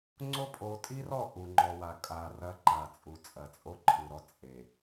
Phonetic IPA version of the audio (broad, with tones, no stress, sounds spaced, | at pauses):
ŋ͡ǀ o˦ pʼ o˨˦ tʼ i˦ r ɔ˦˨ ʔ u˨ ŋ͡ǃ ɔ˨ w a˨ kʼ a˨ r ɐ˦ ǃ a˨ t͡sʼ u˨ t͡sʼ ɐ˨ t͡sʼ o˦ ǃʰ ɨ˨ ɾ ɔ˦ t͡sʼ e˨